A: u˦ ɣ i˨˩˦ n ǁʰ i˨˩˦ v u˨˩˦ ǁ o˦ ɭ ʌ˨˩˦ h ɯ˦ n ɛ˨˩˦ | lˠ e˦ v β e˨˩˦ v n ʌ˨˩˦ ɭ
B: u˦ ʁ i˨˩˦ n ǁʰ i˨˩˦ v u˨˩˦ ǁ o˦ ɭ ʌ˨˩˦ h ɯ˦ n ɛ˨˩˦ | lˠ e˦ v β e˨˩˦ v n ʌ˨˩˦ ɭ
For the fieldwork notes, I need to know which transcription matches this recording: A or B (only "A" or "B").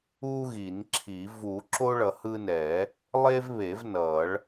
A